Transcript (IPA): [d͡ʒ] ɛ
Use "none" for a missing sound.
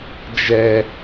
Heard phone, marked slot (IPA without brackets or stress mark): d͡ʒ